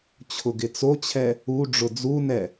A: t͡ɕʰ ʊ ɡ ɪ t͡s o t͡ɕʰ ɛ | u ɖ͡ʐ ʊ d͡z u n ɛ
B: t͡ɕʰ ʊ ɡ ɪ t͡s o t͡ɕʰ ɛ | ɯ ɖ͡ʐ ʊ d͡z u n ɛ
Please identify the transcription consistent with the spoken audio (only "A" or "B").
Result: A